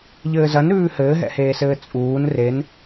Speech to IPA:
ʎ ɘː z ɐ n ɾ ʉː h ɘː ɦ ɛ̰ h eː s ɘː t͡sʼ uː n r e n

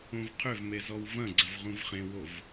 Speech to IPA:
õ v qʰ ʏ v m e z ɔ w v ɐ̃ ɡ͡ǀ ɐ v ʁ ũ v χ ẽ w o v

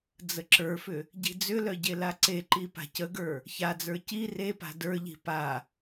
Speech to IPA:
d͡z ə ǁ ə˞ f ʏ | ɟ i̤ d͡z ʏ l œ ɟ e l a ǀ e ǃ i p a̤ c ə ɡ ə˞ | ç a d͡z ə˞ c i r e p a̤ d ə˞ ʎ i̤ p a

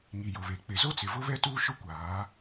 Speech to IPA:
ŋ i˨ j ʊ˨ β e˨ k͡p ɪ˨ z o˦ t͡s ɪ˨ v ʊ˦ β ɛ˦ t uː˦ ʃ ʊ˦ kʷ aː˨˦

